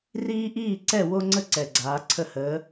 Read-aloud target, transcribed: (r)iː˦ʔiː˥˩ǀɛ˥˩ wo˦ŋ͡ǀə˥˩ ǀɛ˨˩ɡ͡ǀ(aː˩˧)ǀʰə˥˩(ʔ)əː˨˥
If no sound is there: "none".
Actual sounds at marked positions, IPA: r, aː˩˧, h

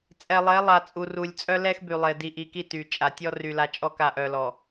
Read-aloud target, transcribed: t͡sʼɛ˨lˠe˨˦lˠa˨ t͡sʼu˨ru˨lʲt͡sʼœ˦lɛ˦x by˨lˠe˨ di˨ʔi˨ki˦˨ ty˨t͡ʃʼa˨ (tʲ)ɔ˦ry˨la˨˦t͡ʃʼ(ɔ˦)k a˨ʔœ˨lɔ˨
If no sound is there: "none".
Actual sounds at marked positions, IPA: tʲ, ɔ˦˨

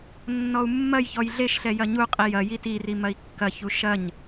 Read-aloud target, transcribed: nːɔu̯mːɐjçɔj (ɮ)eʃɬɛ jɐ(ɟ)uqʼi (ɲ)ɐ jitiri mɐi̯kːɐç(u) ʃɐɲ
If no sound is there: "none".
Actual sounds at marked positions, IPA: ɮ, ɲ, j, u

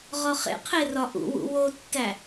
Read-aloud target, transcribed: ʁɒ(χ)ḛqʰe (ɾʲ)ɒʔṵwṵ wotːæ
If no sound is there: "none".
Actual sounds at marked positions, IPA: χ, r

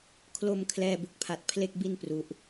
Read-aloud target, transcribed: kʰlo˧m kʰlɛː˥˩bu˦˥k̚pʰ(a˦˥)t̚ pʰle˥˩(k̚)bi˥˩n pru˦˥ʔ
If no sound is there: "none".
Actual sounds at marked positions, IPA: a˦˥, k̚

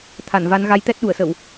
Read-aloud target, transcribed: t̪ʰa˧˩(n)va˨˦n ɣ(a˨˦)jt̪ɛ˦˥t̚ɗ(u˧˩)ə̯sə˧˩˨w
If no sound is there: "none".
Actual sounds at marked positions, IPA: n, a˨˦, u˧˩

